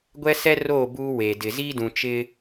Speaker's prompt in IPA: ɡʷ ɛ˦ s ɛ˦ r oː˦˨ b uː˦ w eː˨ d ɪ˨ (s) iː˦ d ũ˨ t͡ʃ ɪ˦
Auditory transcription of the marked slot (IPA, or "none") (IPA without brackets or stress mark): z